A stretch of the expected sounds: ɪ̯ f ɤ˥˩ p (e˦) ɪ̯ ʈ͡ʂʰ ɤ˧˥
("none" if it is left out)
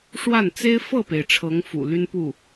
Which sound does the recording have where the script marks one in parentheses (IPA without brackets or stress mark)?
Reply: e˩